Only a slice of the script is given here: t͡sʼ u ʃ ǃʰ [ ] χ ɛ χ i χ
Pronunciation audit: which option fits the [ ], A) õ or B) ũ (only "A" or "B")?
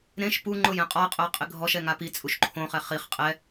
A